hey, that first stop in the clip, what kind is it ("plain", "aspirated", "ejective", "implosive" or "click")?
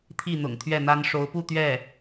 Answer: aspirated